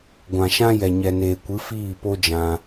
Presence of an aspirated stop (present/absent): absent